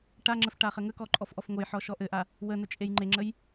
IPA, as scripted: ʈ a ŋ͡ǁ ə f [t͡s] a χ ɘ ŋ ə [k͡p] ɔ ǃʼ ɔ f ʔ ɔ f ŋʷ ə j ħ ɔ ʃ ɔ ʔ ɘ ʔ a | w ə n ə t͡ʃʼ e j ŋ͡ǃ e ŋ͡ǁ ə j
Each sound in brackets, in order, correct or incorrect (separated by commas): incorrect, incorrect